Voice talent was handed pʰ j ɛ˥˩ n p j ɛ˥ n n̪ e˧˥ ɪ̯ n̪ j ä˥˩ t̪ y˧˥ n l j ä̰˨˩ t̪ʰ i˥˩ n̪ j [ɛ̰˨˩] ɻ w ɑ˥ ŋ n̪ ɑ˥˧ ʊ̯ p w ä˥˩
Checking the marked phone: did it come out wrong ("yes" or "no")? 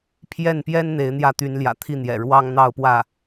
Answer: no